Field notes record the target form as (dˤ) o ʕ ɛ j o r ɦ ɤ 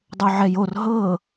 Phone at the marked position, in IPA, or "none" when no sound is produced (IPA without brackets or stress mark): dˤ